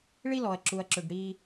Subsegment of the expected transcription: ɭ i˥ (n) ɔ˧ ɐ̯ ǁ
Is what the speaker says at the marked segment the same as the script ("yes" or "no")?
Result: no